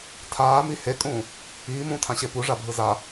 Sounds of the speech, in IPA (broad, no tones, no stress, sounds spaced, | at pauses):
tʰ aː m i h e kʼ ũː | iː m ũː tʰ ã ɕ e p u ʐ a bʱ ɯ z a